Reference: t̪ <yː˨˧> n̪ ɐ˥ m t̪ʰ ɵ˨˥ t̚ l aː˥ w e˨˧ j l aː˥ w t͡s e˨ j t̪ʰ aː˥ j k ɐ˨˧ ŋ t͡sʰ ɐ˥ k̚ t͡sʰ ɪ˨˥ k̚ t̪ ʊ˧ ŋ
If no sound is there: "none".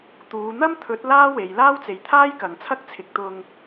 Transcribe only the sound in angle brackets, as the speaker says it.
uː˨˧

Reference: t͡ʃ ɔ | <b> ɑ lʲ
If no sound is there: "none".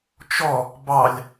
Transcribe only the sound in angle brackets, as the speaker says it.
b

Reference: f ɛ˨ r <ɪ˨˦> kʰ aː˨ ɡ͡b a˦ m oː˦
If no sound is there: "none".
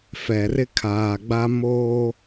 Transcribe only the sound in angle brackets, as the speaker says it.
ɪ˦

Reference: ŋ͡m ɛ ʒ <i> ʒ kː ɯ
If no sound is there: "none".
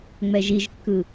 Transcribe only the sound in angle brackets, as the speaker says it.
i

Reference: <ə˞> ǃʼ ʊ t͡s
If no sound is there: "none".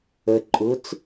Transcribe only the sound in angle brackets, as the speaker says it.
ə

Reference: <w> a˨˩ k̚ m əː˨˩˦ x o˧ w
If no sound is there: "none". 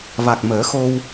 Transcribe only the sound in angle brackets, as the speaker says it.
v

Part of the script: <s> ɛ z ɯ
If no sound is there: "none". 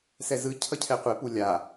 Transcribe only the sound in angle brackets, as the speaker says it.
s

